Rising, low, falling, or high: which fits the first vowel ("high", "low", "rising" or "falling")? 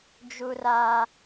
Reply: low